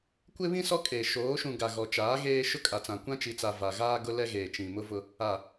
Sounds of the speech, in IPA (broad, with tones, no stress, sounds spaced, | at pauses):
kʷ ɪ˦ β ĩ˦ s ɔ˦ kʼ eː˨ ʃ oː˨˦ ʃ ũ˨ ɡ a˨ ɣ ɔ˨ t͡ʃ aː˨˦ ɣ eː˦ ʃ ʊ˦ kʼ a˨ t͡s ã˨ kʷ ã˦ t͡ʃ i˨ t͡s a˨ v a˨ ɣ aː˦ ɡ ʊ˦ l ɛ˦ ɣ eː˨ t͡ʃ ĩ˨ m ʊ˦ v ʊ˦ | a˨